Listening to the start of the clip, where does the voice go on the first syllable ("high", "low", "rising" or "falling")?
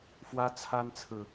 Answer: high